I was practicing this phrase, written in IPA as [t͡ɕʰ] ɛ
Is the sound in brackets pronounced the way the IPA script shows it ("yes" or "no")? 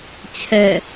yes